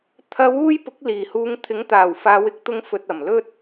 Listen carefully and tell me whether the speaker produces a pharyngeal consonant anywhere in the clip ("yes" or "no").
no